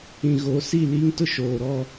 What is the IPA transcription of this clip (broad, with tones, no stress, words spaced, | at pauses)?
ĩ˨ɣo˨˦si˦˨ liː˦ŋtʊ˦ ʃoː˨ɾɔ˦˨